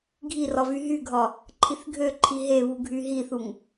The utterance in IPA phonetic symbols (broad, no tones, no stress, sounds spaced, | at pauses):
ɡʱ i r ɒ v y ɦ y ɡʱ ɒ | ǃʰ i θ ɡʱ ø ǃʰ i ɦ e β u ɡʱ y ɦ i θ u ŋ